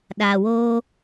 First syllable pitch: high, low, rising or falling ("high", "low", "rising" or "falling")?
low